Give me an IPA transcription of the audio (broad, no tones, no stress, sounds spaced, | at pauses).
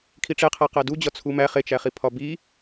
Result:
kʰ i ʈ͡ʂ e qʰ æ q æ d u d͡ʑ ɒ t͡sʰ u m æ χ e t͡ʃ æ χ i pʰ ɒ b i